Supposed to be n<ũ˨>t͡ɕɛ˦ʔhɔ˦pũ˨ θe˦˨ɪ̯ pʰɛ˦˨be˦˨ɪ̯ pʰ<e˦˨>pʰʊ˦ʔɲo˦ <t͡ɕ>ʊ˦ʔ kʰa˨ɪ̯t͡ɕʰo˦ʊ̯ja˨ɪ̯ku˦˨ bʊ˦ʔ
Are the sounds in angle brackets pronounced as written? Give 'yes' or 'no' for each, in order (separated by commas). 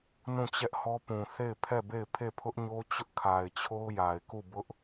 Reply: no, yes, yes